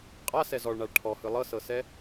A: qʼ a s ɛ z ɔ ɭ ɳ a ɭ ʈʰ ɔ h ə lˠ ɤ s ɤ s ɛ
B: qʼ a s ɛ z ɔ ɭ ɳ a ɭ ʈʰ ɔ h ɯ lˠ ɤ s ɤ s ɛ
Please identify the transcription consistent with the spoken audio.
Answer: B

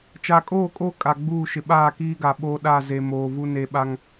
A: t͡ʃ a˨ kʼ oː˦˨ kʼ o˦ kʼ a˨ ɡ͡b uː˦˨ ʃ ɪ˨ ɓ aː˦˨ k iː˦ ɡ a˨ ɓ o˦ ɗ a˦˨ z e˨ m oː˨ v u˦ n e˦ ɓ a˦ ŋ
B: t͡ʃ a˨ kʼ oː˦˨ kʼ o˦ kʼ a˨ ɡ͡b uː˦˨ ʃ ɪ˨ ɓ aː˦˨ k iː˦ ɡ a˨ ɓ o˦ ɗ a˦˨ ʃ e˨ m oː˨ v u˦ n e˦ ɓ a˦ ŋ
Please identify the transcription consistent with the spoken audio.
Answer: A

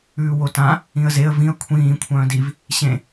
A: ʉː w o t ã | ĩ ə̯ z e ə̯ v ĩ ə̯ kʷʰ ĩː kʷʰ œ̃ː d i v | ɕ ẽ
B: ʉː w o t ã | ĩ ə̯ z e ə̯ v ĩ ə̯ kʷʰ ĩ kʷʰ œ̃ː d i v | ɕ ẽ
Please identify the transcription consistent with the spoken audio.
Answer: A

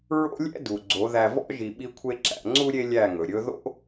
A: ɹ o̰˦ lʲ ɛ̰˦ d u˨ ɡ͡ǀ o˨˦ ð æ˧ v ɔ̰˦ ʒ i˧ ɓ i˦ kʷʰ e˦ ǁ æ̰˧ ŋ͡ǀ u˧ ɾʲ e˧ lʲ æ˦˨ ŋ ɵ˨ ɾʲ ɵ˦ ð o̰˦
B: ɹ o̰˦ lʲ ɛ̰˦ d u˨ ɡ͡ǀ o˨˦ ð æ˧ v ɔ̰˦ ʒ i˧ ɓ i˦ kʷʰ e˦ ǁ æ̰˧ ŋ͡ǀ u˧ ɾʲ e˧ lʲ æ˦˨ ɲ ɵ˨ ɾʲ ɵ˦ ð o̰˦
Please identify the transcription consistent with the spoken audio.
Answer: A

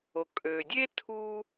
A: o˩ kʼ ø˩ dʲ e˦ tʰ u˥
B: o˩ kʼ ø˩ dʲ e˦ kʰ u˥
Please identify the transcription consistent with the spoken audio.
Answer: A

